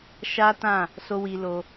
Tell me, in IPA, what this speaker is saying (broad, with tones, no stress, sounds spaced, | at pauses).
ʃ a˦ t ã˦˨ | s o˦ w i˧ l o˧